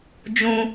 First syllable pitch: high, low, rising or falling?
high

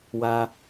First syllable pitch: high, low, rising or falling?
high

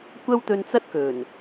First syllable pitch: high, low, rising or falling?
high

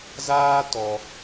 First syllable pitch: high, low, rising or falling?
high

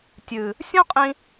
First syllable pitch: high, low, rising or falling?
low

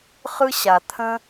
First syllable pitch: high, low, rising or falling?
high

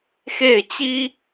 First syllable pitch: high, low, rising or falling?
falling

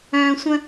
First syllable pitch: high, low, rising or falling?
high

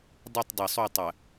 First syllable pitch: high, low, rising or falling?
falling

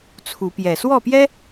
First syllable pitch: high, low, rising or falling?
rising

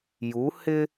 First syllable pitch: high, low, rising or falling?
rising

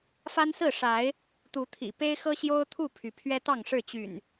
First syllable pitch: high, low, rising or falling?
high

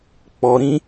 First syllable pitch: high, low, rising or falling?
low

